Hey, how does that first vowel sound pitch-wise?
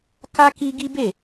high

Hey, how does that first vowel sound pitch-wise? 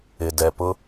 low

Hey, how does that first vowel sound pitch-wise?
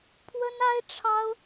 high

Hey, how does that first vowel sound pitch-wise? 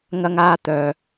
high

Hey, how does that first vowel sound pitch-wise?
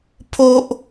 high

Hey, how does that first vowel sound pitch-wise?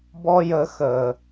high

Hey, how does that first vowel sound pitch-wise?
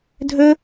high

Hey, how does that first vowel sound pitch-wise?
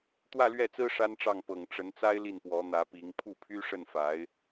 falling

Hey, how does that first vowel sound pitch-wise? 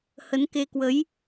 rising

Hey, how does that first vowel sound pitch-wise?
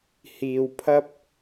low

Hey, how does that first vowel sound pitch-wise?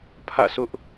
falling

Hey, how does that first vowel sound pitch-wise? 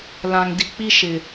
low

